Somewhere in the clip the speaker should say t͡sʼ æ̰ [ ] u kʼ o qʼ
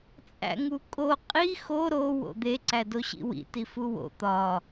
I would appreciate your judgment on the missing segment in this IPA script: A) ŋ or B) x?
A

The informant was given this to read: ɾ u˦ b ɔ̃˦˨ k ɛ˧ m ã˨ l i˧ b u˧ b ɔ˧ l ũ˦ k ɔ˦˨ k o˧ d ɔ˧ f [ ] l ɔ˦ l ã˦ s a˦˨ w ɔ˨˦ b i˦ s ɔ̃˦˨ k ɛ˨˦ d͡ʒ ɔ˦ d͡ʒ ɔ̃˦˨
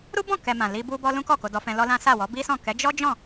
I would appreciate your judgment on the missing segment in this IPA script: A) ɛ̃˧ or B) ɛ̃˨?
A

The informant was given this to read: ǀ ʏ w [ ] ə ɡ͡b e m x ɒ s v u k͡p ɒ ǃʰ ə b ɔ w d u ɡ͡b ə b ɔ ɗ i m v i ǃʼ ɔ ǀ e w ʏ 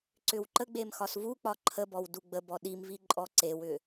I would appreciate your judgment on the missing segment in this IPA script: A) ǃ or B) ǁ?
A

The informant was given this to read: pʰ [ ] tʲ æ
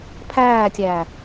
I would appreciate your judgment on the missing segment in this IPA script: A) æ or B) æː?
B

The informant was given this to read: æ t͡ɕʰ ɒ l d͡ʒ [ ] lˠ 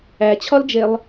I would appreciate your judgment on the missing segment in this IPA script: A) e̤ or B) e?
B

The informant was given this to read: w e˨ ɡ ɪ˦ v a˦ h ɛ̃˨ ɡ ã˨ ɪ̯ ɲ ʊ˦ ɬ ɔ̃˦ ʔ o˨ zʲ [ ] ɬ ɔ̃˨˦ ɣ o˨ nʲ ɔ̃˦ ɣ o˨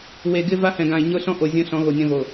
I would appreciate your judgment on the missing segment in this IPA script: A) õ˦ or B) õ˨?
A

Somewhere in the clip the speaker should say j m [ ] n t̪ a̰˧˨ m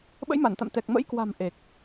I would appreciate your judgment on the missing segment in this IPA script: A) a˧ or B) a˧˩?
B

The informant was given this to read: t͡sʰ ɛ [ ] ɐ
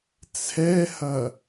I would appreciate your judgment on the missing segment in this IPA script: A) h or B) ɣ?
A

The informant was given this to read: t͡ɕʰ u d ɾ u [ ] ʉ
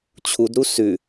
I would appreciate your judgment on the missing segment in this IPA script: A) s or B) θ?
A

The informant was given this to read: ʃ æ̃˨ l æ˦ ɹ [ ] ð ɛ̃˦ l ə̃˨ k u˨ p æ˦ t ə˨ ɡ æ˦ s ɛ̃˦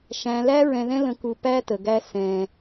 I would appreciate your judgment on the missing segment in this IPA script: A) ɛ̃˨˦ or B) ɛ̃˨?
B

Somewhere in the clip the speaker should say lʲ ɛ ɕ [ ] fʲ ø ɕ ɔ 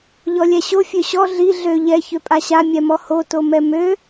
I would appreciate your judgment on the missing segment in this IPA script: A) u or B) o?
B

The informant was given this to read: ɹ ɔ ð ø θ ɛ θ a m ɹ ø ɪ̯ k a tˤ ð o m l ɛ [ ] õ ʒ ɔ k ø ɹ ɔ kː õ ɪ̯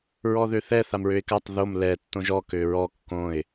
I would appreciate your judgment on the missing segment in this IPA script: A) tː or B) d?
A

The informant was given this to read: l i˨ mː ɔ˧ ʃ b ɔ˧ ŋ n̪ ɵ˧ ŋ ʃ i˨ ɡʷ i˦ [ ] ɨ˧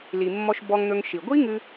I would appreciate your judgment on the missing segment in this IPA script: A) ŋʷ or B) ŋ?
B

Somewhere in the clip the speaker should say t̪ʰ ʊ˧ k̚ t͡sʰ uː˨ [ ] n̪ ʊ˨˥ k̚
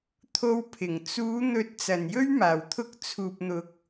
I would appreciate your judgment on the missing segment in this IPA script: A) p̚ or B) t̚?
A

